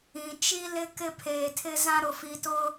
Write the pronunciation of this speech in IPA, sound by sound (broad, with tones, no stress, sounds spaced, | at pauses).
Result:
ĩ˨ t͡ʃ i˦ l ɪ˦ k ɪ˦ pʰ eː˨ tʰ ɪ˦ z ã˦ ɾ ʊ˨ f i˨ t ʊ˦